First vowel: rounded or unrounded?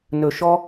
rounded